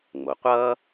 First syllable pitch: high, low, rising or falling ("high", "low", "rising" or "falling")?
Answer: low